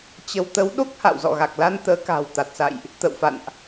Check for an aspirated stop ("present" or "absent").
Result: absent